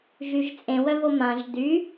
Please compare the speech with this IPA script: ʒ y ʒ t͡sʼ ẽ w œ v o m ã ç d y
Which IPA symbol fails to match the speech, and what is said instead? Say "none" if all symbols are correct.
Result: ç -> ʒ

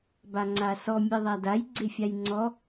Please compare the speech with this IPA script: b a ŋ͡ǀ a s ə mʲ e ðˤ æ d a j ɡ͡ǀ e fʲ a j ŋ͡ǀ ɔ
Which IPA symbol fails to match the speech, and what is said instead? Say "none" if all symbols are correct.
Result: ə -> ɔ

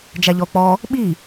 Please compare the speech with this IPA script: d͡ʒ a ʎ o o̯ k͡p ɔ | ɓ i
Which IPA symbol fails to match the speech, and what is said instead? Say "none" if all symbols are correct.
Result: o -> ɔ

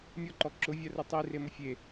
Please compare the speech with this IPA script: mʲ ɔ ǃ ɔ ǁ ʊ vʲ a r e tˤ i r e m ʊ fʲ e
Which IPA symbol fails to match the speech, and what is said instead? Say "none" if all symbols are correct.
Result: none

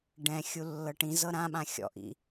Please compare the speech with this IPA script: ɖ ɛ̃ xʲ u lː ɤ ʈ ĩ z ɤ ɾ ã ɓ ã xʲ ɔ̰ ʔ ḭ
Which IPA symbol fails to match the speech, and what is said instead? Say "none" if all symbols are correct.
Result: none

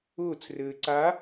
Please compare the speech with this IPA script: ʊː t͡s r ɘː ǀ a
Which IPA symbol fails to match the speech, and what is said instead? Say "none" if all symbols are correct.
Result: none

